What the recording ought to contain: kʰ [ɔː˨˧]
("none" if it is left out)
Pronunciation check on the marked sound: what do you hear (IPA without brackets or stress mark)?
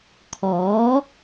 ɔː˨˥